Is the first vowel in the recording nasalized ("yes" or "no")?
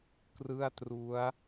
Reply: no